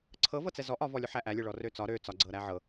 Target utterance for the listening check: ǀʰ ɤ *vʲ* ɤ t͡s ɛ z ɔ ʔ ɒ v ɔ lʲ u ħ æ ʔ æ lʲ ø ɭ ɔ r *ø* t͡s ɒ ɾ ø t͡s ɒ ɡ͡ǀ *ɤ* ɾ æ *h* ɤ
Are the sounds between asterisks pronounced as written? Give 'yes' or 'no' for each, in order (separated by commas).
no, yes, yes, no